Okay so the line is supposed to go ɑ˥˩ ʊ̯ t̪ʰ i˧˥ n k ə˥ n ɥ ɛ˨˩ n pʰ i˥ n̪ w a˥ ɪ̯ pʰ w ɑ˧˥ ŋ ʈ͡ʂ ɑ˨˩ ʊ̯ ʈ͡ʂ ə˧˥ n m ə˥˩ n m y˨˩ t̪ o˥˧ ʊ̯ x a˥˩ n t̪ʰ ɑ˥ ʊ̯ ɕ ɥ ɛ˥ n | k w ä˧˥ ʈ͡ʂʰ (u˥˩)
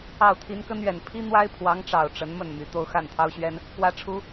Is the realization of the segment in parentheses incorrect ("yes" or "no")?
yes